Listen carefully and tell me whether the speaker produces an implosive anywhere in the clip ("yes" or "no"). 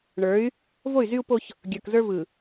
no